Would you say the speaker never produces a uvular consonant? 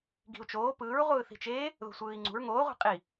no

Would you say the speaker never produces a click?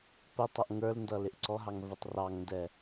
no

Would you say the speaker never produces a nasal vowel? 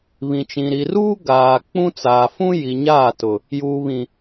no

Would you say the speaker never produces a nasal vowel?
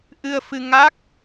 yes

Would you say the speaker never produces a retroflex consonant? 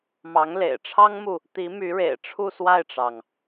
no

